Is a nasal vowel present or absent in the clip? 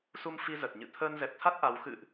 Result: absent